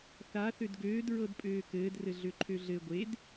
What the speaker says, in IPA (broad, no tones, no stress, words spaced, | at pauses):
θa θødɡøːd ɹɤdpʼøːkɘːd rɘɮøǃʰøɮɘ ɡʷed